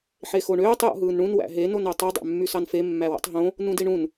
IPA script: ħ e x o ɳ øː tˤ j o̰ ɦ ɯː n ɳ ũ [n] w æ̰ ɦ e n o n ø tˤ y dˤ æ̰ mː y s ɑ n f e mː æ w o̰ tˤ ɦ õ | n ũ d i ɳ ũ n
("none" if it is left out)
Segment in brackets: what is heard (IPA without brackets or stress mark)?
n